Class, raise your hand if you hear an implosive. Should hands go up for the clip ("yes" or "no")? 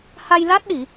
yes